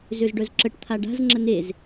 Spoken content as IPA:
zøzɖœzǁəʈ t̪ʰaɖa̤z ŋ͡ǁənez

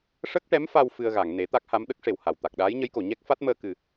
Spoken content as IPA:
ʂə˦˥k̚ʈɛ˧˥mfa˧w fɨ˧ə̯ɣa˨˩˨ŋ ne˨˩˦t̪a˦˥k̚ha˧˥m ɗə˦˥k̚ʂe˨˩w ha˨˩w t̪a˨˩k̚ɗaː˧˥jɲə˧˥jko˨˩˨ ɲɛ˦˥k̚fa˦˥t̚məː˧ kɨ˨˩

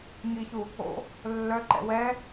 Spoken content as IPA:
ŋiçu | o̰ | lːœǃɛ̰ wɛ

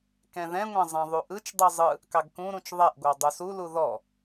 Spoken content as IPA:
kɛ̃ðɛ̃ŋʷɛ̃ zˤɛ̃ðˤuʔɯt͡ʃdˤɯ zˤɯ | kɑɡkũɾũt͡ʃ ðˤɛʔɡʷɑ dˤusulu ðɔ

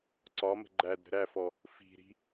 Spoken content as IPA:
ǀɒmə̤ ɡ͡ǃæd ɾə̤ɾæfɔ | fi̤ɾi̤

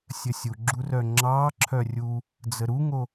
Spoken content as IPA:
sʲəsʲuɡ͡ǁurœ ŋ͡ǁɑ ǁʰœrʲu | d͡zəɾuŋo

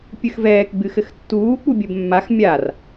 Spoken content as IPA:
pʲɨxvɛːk ɡ͡bɨxɘxtːuː k͡pubʲɘbmːax mʲar

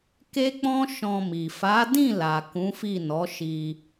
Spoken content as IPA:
ke˦k͡pɔ̃˦ ʃɔ̃˧mi˨ fa˨˦ dĩ˦˨ la˨ kũ˨˦fi˦˨ nɔ˨˦ʃi˧

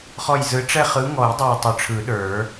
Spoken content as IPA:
χɔ˧˩jzɯ˨˦ ʈ͡ʂɛ˥˧ χɯ˨˦ŋɔ˨˩˦j dˤə˞˧˩e̯tˤʊ˨˩˦ʈ͡ʂʰɯ˨˩˦ɗə˞˨˩˦

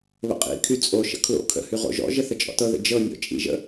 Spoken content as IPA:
βə̰qʼḭkʰy t͡sʼoʃə̰ kʰlo̰ kʰə̰hy ʁo̰ʒɔ̰ʒə θət͡ʃʼɔ̰tɤðə̰ d͡ʒɤ nʲɔ̰t͡ʃʼḭʒə̰

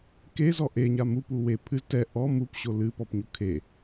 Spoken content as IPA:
kezɔ ʔeɲa mupu we pʰɨz tɛ ʔɔ mupɕo lɨpɔpɲu kʰe

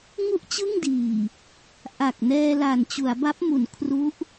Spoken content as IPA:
ŋu˥˩ʔt͡ɕɯ˥˩ŋdiː˨˩ | ʔa˨˩k̚nɛː˧ la˨˩nt͡ɕu˩˦a̯ba˦˥p̚mu˩˦n kʰru˦˥ʔ

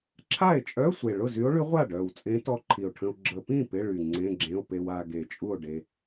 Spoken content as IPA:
ǁʰa˥˩e̯t͡ʃʼœ˧˥˧sʷe˨˩ ɭʊ˥˩zy˧˥o̯ɭy˧˥ ʁʷa˥˩ɖœ˨˩wt͡sʼẽ˧˥ tɔ˧˥ǃʰi˨˩o̯ʈʰə̃˧o̯ ɡ͡ǁə˧ pĩ˥˩ pɪ˧˥˧ɭy˨˩ ŋ͡ǀẽ˧˥˧ɡ͡ǁẽ˧˥˧o̯pe˧w a˧ ɡe˨˩t͡ʃʼu˥˩o̯ɖe˧

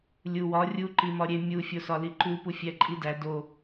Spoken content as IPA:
lʲuwɒ rʲu ǃimɒɾʲe mʲu fʲosɒliǃu pufʲæǃʼidæ do

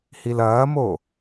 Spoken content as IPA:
hilɐːmo

